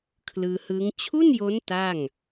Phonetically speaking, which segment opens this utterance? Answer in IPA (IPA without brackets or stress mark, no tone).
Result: kʰ